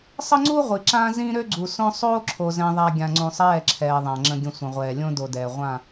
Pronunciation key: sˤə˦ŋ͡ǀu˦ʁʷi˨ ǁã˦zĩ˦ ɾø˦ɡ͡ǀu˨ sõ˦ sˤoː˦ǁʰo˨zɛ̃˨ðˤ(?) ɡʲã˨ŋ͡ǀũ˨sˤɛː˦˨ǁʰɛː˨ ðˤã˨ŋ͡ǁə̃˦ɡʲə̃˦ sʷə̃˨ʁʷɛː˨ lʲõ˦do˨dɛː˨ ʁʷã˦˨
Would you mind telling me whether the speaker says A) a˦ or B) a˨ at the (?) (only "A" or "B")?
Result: B